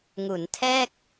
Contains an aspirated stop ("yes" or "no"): yes